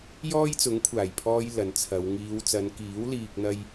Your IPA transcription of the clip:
j ɔː˥ j t͡s ʊ˨˥ ŋ kʷʰ aː˨˩ j pʰ ɔː˧ j l ɐ˨ n t͡sʰ ɐ˨˧ w ŋ iː˨˧ w t͡s ɐ˨˧ n k iː˨˥ w l iː˨ k̚ n̪ ɐ˧ j

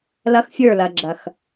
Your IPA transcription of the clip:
l ɐ˦ x fʲ ə˞˦˨ l ɐ˨ ɡ͡ǁ ɐ˨ x

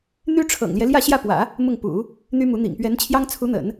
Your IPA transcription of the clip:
n̪ y˥ ʈ͡ʂʰ ɤ̰˨˩ ŋ l j ɛ˦ l j ä˥˧ ɕ j ä˥˩ p w ä̰˨˩˦ | m ʊ˥˩ ŋ p ṵ˨˩˦ | n̪ y˥ m u˧˥ n̪ ḭ˨˩ ŋ p ɥ ɛ˧˥ n t͡ɕʰ j ɑ˥ ŋ t͡sʰ u˧˥ n̪ ə̰˨˩˦ n

